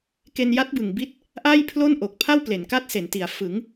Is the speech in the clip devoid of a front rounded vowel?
yes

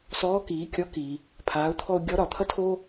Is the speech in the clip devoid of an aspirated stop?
no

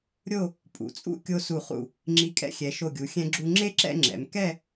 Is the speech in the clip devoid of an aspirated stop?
yes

